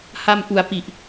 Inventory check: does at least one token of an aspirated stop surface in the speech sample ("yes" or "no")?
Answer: no